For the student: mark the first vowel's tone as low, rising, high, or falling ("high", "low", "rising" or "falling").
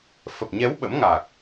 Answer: low